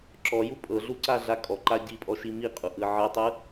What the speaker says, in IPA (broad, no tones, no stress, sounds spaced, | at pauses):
ǁ ɔ j u pʼ ɤ ɮ u ǀ a ɮ a kʼ ɔ ǃ a ɟ i pʼ ɔ ʃ i m i qʼ u ʔ ɯ ʕ ɯ tˤ ɯ